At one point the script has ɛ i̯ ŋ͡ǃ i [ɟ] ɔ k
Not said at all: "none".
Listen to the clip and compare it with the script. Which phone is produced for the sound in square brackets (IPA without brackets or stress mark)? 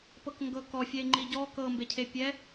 ɟ